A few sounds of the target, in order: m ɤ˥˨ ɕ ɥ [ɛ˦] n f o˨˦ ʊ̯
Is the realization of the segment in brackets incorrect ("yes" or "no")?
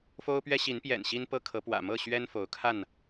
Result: no